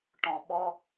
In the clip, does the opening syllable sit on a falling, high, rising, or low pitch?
low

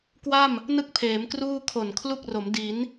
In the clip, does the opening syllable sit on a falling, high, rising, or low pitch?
falling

